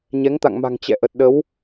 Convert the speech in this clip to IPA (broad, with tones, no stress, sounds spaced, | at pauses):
ɲ ɛ˨˦ ŋ t̪ a̰˧˨ ŋ m a̤˨˩ ŋ t͡ɕ ɛ̰˧˨ ʔ ə˨˩ t̚ ɗ ə˨˦ w